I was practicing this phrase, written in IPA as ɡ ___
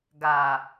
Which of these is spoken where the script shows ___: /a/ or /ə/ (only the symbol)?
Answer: a